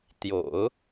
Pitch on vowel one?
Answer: low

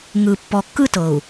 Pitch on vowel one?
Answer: low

